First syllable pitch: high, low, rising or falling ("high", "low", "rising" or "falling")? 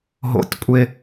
high